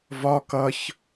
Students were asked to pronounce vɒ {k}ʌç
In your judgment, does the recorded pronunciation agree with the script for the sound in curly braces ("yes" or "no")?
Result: yes